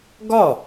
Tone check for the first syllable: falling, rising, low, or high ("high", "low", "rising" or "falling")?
falling